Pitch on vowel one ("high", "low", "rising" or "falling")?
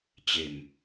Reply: low